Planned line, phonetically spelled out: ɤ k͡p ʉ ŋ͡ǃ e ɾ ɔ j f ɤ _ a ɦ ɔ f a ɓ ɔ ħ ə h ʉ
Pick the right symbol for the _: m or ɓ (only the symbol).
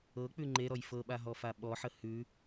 ɓ